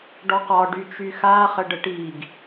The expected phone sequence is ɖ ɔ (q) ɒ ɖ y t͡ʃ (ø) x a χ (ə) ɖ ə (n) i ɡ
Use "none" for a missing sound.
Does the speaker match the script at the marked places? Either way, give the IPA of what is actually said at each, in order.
q, y, ə, ʈ

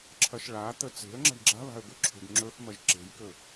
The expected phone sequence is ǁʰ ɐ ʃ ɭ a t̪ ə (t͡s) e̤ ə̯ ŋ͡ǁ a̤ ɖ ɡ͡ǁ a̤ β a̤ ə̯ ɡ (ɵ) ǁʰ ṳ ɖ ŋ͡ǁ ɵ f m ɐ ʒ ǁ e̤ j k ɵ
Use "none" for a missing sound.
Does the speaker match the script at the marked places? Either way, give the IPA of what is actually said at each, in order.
t͡s, ɵ

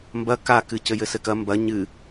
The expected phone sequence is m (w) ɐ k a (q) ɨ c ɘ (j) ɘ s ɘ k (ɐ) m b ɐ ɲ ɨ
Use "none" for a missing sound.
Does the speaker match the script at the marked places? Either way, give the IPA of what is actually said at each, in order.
b, k, j, ɐ

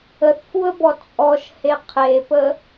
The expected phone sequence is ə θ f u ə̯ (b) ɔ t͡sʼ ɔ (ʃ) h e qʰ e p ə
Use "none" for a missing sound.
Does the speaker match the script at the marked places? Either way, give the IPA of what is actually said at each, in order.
b, ʃ

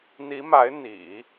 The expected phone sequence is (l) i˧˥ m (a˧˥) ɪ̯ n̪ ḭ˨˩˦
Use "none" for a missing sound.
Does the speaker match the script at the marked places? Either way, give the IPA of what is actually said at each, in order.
n̪, a˧˥

